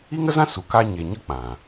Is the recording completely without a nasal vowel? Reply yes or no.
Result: no